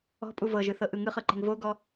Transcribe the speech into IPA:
ɔ̤ pʼ u v ɤ ʒ ɯ θ ɤ ʔ ɯ ŋ ɯ χ ɤ ǃ e̤ ŋ v o ɡ ɔ

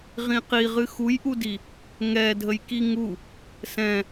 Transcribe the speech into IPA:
ʁ ĩ q i ʁ ɨ x u j ʔ u d i | ŋ ɛ dʱ ə j k i ŋ u | s ɛ̃

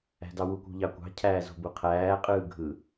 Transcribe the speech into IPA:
æ̤ d ɑ w u kʷ ṳ ʎ ɑ kʷ ɑ̤ cʰ æː z o̤ b u qʰ æː qʼ ɯː ɡʱ ɯ

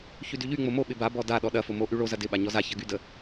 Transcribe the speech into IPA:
ç y d y ʎ y ŋ͡m o m o ɓ ɪ b a b ɔ d a ɗ ɔ ɗ ɐ f o m o ʔ y ɭ o z ɐ d ɪ ɓ a ɲ ɔ z a ç ɐ ɡ y d ə

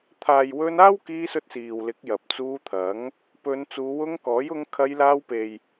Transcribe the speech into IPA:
t̪ʰ aː˨ j w ɵ˧ n aː˥ w k iː˧ s ɵ˧ t̚ s iː˨ w l ɪ˨˥ k̚ j ɐ˨ p̚ t͡s uː˧ t̪ʰ ɐ˨˥ ŋ | p ɵ˨˧ n t͡s uː˨˧ w ʊ˧ ŋ k ɔː˨˥ j ʊ˧ ŋ kʰ ɐ˧ j l aː˧ w p e˨ j

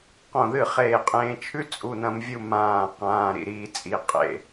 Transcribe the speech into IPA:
q õ˧˩ ð ɨ˥˩ χ eː˧˩ qʼ ẽː˧ t͡ʃʰ ʉ˥ t͡sʼ u˩˧˩ n ɐ̃˧ m vʲ u˥˧ m ãː˧˩ q ãː˩˧˩ ɾ ḭ˥˩ ɾ iː˧ t͡sʼ i˩˧˩ qʼ ḛ˥˩

